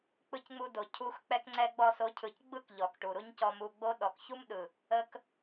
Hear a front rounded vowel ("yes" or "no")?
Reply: no